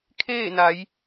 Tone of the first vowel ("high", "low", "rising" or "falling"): falling